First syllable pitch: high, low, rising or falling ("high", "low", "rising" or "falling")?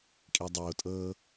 low